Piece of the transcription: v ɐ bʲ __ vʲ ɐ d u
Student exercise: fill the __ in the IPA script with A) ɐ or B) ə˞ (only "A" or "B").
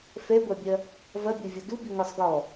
B